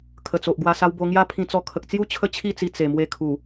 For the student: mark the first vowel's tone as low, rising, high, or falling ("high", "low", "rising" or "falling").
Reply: low